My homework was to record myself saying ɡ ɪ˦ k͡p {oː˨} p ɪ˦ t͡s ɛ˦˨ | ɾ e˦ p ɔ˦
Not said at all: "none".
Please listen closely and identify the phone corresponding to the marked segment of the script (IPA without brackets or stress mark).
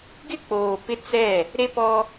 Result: oː˨